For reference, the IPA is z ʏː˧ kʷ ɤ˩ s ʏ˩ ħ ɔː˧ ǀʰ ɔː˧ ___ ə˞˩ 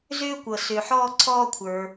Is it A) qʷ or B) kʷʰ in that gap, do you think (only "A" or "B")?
B